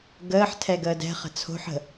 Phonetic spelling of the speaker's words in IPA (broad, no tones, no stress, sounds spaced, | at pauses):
ɡ əː ħ tʰ ɛ ɡ əː d ɛ̤ χ ə̤ t͡sʰ o̤ ħ ə̤